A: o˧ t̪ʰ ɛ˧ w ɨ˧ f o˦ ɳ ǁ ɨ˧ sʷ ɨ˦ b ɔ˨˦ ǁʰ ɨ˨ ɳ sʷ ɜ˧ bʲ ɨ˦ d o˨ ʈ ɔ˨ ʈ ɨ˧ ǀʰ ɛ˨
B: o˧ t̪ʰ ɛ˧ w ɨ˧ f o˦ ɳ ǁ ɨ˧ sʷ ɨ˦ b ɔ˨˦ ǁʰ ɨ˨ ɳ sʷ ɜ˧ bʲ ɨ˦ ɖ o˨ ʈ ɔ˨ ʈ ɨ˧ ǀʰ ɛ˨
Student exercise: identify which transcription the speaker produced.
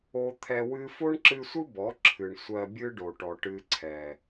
B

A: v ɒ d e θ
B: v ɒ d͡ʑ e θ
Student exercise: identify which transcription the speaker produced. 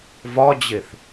B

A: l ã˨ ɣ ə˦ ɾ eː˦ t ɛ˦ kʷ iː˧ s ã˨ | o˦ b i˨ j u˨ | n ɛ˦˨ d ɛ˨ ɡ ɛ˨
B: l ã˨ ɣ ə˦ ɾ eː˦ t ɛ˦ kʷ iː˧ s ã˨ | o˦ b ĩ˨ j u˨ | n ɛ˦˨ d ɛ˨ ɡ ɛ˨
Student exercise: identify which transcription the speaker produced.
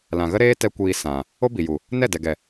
A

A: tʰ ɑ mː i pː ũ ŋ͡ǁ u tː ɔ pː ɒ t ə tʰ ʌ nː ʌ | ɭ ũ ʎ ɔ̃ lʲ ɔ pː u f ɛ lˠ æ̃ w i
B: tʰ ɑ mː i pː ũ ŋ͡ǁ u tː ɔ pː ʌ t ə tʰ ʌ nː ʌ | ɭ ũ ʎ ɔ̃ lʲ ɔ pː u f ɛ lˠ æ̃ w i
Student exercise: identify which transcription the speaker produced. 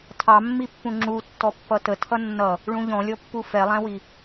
B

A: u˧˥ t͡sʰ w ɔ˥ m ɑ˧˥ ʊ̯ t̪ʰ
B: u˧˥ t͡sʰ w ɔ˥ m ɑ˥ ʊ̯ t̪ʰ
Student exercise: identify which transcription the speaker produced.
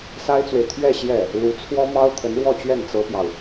B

